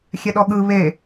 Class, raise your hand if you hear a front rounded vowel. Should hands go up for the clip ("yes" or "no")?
no